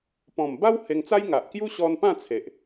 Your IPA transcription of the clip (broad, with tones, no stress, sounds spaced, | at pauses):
p ɔ̃˨˩ m b a˦ w h e˧ ŋ t͡s a˦ j ŋ a˨ ʔ k j u˦ ɕ ɔ˧ n p ã˥˧ t͡sʰ e˨ ʔ